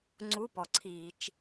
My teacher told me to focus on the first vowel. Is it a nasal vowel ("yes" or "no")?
no